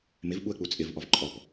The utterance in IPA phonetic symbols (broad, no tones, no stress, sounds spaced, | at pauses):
m ɪ v ɓ u ə̯ k͡p u t͡sʼ ɪ v ʔ ɔ v ǃʼ ɔ p